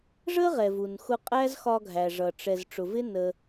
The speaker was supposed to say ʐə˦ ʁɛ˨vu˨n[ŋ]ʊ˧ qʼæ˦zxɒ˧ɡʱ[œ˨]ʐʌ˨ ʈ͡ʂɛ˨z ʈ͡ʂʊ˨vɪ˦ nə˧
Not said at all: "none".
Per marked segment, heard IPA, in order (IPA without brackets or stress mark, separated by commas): x, æ˨